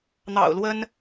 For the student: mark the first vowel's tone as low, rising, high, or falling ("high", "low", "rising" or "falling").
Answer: low